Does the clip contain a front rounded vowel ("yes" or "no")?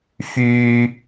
yes